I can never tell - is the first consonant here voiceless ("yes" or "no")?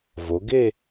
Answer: no